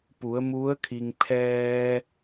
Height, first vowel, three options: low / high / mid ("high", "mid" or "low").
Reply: high